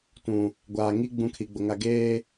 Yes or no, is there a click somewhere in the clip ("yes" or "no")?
no